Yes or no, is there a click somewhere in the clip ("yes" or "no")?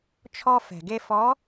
no